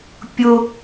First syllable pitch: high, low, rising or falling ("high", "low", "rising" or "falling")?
high